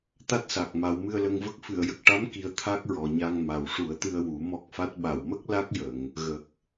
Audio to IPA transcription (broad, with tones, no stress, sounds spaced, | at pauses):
t̪ a˦˥ t̚ s a˨˩ k̚ m a˨˩˦ w m ɨ˧ ə̯ l ə˧ ŋ v ə˦˥ k̚ f ɨ˨˩˨ ə̯ j ə˨˩ k̚ ʈ a˧˥ m k i˨˩ ə̯ t̪ʰ a˦˥ k̚ ɹ ɔ˨˩ ɲ a˧ ŋ m a˨˩ w ʂ u˨˩˦ ə̯ t̪ ɨ˧ ə̯ w u˨˩˦ m ɔ˦˥ k̚ f a˦˥ t̚ ɓ a˨˩˨ w m ə˦˥ k̚ l a˦˥ k̚ j ə˨˩˨ ŋ | ɣ ə˨˩ k̚